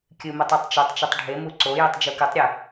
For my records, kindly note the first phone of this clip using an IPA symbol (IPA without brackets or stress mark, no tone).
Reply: kʲ